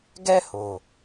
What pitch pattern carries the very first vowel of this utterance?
high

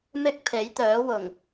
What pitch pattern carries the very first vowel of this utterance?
high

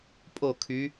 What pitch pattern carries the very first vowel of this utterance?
falling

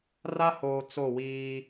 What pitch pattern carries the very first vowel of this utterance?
high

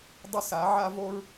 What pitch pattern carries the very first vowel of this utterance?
high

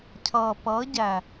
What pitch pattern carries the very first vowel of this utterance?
low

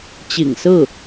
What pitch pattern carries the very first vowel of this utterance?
low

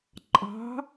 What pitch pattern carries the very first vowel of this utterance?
rising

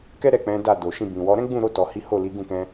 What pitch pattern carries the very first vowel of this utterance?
high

